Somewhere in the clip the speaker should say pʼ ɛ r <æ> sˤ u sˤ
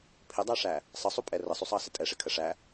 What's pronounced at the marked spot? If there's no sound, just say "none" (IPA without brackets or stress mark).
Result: ə